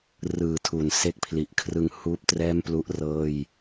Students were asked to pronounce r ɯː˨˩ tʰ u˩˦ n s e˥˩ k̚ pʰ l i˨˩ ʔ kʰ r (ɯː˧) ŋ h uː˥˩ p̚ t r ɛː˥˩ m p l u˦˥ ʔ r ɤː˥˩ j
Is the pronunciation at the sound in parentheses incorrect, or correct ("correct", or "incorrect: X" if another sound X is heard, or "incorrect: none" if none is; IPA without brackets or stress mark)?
incorrect: ɯ˧